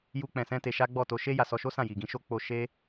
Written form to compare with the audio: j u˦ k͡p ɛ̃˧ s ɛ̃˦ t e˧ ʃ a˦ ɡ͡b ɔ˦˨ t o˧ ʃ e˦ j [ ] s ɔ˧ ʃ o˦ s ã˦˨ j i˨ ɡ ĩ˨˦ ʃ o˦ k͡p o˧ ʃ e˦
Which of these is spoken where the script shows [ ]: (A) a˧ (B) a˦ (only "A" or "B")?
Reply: A